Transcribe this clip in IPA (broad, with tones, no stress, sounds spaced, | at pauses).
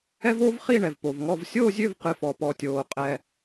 ɛ˥ v oː˥ v χ i˥˨ ɳ ɛ˩ v p o˩ v ŋ ɔ˥˨ v sʲ oː˥˨ zʲ ø˥˨ v q ɨ˩ f ɔ˩ p ɔ˩ tʲ oː˩ qʼ ɛ˩